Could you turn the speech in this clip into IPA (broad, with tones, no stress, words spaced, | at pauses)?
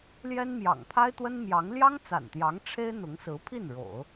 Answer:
ljɛ˥nmjɑ̰˨˩ŋ pʰa˥ɪ̯t̪wə˥nmjɑ˧˥ŋ ljɑ˥ŋt͡sa̰˨˩nt̪jɑ˧˥ŋ ʈ͡ʂʰe˥ɪ̯n̪ʊ˧˥ŋsɹ̩˧˥pʰi˥˩n ɻo̰˨˩˦ʊ̯